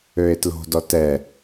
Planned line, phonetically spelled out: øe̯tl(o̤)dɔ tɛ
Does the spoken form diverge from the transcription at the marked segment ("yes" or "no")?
no